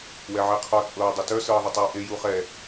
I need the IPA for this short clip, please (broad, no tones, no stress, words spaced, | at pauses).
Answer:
wɛʕeqʰɔ t͡sʼɤːdˤɪtœ sɤːðˤɪtˤəːʔe juχɛ